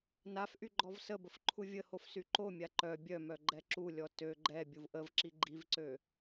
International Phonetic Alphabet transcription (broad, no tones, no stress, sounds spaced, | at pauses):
n a f ʔ y ɡ͡ǃ ɔ v s ə b ə f ǃʰ u vʲ ə h o f s y ǃ o mʲ a ǃ œ bʲ œ m œ ɡ͡ǃ ɛ ǁ u lʲ ɔ t ø ɡ͡ǃ ɛ bʲ u v ʔ ə v ǁ i ɡ͡ǃ i v ǀ ø